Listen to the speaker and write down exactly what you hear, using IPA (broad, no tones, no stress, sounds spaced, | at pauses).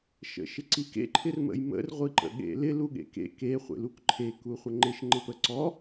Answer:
ʃ ə̰ ʃ ɪ ǀ i k ḛ ǃʰ ɪ r m ə̰ j m ə̰ r ʁʷ i ǃ ə̰ ɠ ḛ l ɪ l u ɠ ḛ k ḛ k e χʷ ḛ l u k ǃʰ e k u χʷ ə ŋ͡ǃ ɪ ʃ ŋ͡ǃ ɪ p ə ǀ ɔ